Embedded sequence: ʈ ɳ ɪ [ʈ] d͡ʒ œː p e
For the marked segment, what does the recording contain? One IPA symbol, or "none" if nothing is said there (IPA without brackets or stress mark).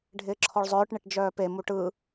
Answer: ʈ